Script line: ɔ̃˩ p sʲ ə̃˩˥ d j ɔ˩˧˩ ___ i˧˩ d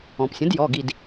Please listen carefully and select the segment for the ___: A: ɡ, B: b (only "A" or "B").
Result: A